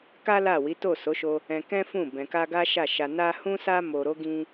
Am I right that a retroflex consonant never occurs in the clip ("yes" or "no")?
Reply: yes